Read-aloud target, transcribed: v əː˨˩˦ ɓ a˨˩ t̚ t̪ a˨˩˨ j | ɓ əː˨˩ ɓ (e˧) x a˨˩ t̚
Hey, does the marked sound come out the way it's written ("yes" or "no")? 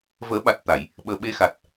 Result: yes